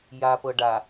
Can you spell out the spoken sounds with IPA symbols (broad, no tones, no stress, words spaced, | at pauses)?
japɤ ɖa